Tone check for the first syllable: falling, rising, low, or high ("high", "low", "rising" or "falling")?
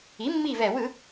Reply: rising